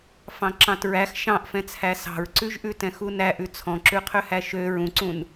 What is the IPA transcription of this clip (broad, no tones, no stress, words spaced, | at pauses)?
fɑ̃ǁɑ̃tɹæx ʃɑ̃ʔfɛ̃t͡sʰæ sɑ̤ɹǀʉʒʔʉ tɛ̃xunæʔʉ t͡sʰɔ̃ǁʉqʰøhæ ʃø ɹũǀũn